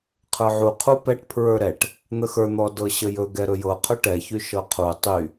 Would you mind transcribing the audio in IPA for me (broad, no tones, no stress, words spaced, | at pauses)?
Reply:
qʰə˞ʕu qʰupɛʈ pʰɹə˞ɾɛʈ | n̪əxə˞ n̪ɔdɤɕəjɵ ɡɛɾɵjɤ qʰɵʈɛ çyʃɤqʰu tˤy